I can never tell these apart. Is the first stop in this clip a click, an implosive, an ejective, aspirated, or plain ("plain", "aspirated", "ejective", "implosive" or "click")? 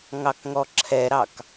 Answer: plain